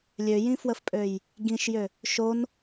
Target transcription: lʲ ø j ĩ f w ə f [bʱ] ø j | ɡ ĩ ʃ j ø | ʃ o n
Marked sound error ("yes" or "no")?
yes